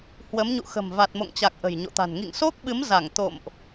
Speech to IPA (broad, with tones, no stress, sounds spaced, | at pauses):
h w ə˨˦ m ɲ ṵ˧˨ x ə̤˨˩ m v a˨˩ t̚ m o̰˧˨ ŋ t͡ɕ a˨˩ k̚ ʔ ə̤˨˩ j ɲ o̰˧˨ t̪ a̤˨˩ n ŋ ḭ˧˨ ŋ s o˦˥ k̚ ɓ ɨ˨˦ m z a˧˩ ŋ t̪ o̰˧˨ m ʔ